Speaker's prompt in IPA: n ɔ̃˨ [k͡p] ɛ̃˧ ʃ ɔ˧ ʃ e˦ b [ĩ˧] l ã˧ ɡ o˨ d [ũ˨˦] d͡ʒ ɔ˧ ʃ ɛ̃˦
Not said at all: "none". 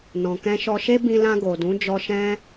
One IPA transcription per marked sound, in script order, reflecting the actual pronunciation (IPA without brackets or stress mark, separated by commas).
k, ĩ˧, ũ˨˦